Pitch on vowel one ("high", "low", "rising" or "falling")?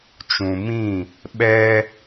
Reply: low